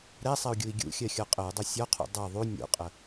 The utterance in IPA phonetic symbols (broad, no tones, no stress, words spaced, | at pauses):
ɾɛsˤɛu̯ɡʲui̯ ɡʲṵxʲɜxʲɔ qʼəu̯dˤʌ sʲɔqʰṵ dˤʌ ðˤu nʲṵqʼə